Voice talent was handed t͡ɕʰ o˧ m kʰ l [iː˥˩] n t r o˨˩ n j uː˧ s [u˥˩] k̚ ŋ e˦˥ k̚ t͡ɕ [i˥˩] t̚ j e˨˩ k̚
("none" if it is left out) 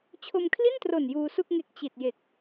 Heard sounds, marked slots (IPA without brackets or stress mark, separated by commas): i˥˩, u˥˩, i˨˩